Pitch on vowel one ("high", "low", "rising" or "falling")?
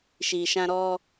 low